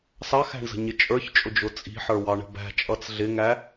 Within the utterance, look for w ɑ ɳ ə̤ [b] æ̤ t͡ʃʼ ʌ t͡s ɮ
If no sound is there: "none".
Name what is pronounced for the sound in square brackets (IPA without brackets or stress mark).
b